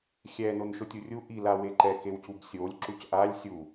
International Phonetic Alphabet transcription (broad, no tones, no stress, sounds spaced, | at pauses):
xʲ ɛ n o n ʃ o tʲ u rʲ u ʔ i l a w e ǃ ɛ k e w c u b sʲ o lʲ ǁ u c ʔ a lʲ sʲ u